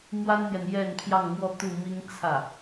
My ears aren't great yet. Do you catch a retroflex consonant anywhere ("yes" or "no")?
no